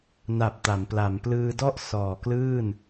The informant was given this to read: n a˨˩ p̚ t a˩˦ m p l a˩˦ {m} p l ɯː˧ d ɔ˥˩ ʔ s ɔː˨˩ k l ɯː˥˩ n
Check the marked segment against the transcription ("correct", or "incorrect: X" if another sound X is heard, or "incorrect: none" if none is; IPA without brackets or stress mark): correct